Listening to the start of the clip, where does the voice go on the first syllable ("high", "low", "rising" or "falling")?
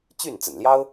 falling